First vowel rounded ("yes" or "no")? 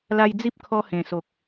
no